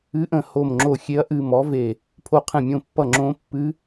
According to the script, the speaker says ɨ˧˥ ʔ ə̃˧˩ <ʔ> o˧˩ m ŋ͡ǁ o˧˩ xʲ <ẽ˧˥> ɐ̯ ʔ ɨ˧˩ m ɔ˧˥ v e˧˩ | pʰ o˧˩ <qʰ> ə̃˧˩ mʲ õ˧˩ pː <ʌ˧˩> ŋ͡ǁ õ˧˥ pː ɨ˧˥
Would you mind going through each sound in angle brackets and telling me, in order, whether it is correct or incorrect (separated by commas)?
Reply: incorrect, incorrect, correct, correct